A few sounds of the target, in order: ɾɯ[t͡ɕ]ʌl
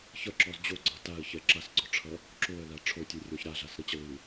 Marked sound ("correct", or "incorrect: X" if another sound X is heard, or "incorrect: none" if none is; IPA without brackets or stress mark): correct